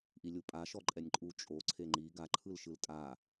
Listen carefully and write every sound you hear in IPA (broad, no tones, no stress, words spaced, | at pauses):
ʔilʲupʼa ʃɔǃʼɛnʲǃʼu t͡ʃʼo ǀʰeŋ͡ǃi ɡa ǃʰɯlʃɯltʼa